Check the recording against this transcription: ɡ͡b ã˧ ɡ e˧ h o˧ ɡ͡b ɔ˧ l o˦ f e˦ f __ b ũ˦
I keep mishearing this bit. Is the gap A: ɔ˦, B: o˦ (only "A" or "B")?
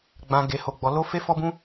A